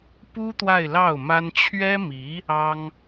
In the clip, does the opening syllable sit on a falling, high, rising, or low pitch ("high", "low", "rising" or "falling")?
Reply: high